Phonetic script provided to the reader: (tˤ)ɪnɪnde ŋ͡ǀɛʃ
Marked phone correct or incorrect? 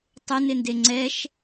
correct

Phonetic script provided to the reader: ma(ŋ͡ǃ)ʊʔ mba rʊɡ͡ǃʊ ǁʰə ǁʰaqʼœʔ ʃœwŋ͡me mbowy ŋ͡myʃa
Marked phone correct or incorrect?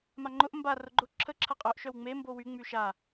correct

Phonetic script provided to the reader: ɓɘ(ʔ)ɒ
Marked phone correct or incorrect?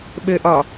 correct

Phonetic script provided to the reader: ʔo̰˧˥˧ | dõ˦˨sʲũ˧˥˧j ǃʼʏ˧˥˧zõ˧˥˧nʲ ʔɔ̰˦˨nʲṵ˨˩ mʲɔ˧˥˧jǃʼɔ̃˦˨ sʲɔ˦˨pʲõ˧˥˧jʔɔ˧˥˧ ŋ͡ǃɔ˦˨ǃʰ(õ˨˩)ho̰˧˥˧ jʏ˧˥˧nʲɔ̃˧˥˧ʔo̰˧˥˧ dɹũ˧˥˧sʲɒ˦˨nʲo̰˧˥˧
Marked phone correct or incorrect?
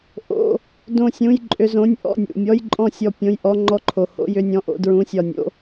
incorrect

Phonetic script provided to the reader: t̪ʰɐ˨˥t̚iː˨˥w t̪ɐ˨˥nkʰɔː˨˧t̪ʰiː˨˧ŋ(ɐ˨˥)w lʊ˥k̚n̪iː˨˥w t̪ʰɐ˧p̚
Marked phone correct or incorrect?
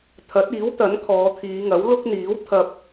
correct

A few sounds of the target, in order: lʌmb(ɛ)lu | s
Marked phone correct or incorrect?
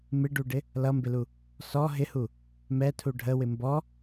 incorrect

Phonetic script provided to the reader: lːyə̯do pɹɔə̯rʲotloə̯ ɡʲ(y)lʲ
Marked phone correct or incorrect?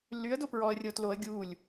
incorrect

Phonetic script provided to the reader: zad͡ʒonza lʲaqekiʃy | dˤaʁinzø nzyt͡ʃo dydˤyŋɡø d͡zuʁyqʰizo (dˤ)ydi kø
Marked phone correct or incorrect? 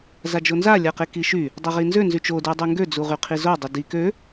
correct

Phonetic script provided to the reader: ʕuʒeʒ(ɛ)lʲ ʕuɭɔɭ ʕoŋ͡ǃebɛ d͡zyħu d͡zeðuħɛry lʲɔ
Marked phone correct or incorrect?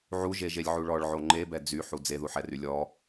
incorrect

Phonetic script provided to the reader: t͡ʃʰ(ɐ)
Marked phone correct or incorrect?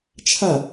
incorrect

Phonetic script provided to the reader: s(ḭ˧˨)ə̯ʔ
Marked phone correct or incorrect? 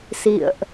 correct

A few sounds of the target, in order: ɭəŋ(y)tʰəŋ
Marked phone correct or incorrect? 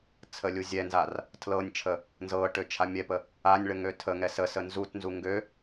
incorrect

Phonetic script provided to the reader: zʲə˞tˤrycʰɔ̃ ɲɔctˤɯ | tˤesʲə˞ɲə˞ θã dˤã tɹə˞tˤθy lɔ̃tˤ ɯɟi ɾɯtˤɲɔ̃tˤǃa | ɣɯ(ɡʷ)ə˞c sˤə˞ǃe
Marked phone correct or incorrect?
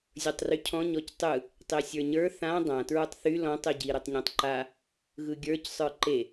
incorrect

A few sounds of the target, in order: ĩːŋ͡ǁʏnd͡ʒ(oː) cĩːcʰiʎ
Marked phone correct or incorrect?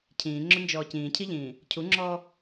incorrect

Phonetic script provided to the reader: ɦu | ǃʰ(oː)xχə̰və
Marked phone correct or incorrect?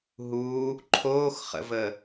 correct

